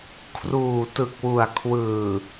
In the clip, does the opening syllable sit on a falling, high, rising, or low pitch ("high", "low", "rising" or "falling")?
low